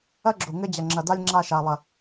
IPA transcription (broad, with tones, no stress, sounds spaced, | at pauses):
ɐ˦ ɡ͡ǁ o˨ ŋ ɘ˧ d͡ʑ ɐ˨ ŋ͡ǁ ɐ˨ d a˦ lʲ ŋ͡ǁ a˦˨ ʃ a˨ lˠ ɐ˨